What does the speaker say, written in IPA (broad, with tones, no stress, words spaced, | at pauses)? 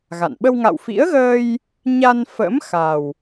ɣa̰˧˨n ɓə˧wŋa̰˧˨wfḭ˧˥ə̯ɣəː˧j | ɲa˧nfə̰˧˥m xa˨˩w